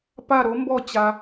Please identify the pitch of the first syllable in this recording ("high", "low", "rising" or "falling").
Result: falling